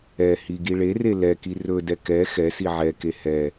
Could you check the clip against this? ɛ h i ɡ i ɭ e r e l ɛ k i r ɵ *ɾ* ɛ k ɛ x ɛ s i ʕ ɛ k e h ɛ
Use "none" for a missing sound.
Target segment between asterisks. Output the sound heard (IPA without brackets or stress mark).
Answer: d